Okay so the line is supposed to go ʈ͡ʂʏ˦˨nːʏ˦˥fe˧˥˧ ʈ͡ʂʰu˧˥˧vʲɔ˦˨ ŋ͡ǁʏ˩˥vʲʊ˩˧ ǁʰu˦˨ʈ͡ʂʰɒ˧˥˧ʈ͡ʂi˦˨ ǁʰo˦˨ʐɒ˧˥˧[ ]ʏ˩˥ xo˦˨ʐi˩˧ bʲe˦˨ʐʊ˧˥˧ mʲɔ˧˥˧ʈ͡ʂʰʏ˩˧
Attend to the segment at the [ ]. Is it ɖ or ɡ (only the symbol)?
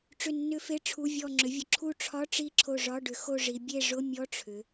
ɖ